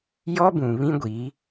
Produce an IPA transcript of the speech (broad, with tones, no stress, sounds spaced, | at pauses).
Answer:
j ɔ˦ b ũ˨ β ĩ˦ ɡʷ i˨˦